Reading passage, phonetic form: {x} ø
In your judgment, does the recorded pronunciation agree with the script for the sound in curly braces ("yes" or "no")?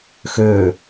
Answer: yes